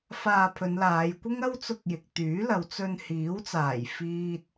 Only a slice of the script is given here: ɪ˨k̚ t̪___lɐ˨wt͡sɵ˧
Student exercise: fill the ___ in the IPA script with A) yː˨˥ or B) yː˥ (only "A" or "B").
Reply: A